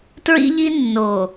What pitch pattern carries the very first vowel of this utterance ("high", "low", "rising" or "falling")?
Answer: high